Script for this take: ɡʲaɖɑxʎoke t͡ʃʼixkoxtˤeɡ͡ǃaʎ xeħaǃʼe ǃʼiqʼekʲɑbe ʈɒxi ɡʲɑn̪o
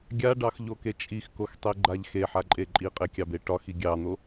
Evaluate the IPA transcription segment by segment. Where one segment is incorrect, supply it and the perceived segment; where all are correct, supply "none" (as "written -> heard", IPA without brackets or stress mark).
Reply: none